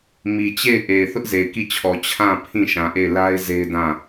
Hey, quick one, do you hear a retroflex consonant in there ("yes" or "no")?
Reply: no